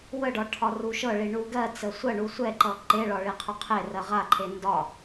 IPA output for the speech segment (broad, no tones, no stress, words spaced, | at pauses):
wəɖɒ ʈʰɒruʃɤɭi ɳuɡɜt͡sə sʷɜɳu sʷɛǃʌ ǃeɭɒ ɭiqʰuqʰerɜ ʁaǃʰe ndɒ